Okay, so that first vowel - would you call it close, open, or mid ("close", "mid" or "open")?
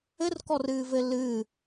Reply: mid